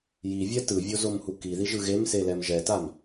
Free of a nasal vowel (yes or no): yes